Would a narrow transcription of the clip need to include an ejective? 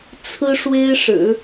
no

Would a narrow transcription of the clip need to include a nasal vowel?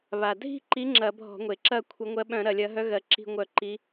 yes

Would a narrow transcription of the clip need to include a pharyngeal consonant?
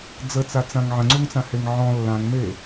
yes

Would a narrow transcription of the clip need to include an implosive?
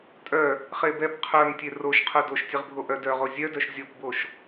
no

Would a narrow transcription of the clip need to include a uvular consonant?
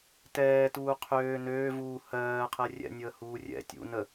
yes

